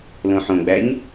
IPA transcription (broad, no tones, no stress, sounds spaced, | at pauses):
l õ ħ õ ɡ͡b æ ɲ